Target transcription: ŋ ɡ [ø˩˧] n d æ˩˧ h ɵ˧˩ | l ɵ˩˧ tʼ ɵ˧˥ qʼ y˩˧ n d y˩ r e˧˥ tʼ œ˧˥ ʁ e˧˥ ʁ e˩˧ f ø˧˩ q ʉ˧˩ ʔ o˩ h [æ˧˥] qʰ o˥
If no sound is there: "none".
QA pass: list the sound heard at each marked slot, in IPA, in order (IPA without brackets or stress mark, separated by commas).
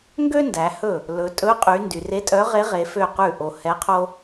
ø˥, ɛ˧˥